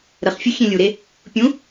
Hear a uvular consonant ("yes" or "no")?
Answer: yes